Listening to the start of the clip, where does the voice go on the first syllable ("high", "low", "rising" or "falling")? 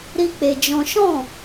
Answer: high